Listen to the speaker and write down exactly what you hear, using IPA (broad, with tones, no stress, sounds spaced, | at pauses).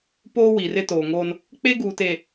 p oː˦ w i˨ r ɪ˦ t oː˨ ŋ o˦ n | k͡p e˦ ɡ uː˨ t e˨